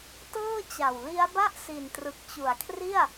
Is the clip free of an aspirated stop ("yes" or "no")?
no